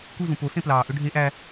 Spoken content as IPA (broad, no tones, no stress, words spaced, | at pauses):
kuzũ po sẽplɑːʔø ɖʱe ʔæ